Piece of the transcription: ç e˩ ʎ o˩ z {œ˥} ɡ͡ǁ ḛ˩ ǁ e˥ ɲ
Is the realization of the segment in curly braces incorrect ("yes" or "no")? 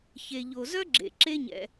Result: no